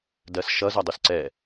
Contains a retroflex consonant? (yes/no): no